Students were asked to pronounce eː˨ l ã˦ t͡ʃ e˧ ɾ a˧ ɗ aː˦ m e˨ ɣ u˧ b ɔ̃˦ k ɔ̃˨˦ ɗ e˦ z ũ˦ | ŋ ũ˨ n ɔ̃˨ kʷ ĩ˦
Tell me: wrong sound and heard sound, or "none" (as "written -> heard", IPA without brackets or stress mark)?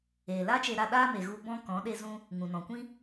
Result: ã˦ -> a˦